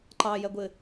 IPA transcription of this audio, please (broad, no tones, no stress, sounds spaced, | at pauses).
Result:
ǃ ɑ j ɛ ɡʷ ɪ